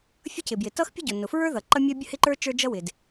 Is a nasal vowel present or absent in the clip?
absent